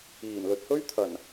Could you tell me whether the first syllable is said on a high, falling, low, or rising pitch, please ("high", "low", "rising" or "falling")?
low